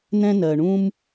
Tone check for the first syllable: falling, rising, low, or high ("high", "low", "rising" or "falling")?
high